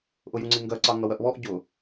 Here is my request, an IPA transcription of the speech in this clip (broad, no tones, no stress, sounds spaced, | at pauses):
ʔ ʊ j u ŋ͡ǀ i ŋ ɡ ɜ ǀ ɑ ŋ ʌ w ɜ ʔ β ɔ ʔ ɟ ʊ